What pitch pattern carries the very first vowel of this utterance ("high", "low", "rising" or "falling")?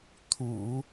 low